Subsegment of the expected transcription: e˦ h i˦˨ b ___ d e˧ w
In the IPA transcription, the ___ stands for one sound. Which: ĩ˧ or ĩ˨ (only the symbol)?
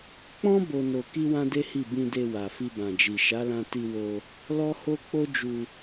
ĩ˧